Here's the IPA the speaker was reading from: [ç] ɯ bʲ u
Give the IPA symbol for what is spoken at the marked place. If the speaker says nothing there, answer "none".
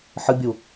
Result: ħ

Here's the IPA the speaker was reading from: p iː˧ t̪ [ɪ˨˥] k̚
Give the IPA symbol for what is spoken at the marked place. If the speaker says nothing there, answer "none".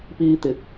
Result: ɪ˨˥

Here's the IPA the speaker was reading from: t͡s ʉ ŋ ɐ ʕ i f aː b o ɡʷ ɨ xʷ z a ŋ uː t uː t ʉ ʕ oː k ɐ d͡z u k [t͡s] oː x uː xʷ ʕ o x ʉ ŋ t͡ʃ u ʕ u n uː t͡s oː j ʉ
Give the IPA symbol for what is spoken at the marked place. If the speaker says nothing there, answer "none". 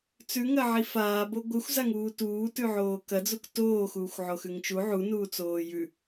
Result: t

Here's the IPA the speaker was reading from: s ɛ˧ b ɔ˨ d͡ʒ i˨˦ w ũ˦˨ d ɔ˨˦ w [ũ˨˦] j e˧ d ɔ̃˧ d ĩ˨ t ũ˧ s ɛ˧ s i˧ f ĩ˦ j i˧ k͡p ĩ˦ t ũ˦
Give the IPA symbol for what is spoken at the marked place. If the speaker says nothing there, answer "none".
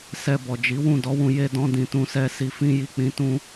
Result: ũ˧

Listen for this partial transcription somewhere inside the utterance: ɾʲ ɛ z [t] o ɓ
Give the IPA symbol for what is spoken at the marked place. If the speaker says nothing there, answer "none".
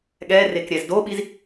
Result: d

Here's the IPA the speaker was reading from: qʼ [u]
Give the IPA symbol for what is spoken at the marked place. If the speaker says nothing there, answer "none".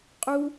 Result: u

